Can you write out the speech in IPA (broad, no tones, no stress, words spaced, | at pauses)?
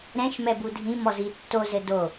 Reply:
ɾɛ̃ʃmɛ budʱĩmɔzi tːozɘ do